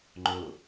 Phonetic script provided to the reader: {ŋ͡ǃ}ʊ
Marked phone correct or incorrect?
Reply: correct